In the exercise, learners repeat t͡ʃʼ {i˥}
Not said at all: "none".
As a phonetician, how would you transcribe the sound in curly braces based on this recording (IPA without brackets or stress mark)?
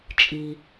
i˨